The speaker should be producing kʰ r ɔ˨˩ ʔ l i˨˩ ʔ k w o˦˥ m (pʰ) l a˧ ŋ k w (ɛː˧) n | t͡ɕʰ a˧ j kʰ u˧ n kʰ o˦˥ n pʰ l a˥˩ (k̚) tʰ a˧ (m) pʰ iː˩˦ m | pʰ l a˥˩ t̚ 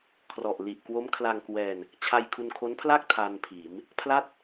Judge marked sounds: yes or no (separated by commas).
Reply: no, yes, yes, no